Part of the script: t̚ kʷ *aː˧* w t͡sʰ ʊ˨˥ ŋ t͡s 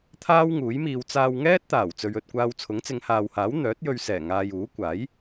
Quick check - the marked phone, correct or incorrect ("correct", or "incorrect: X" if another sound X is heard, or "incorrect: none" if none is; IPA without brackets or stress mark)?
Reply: correct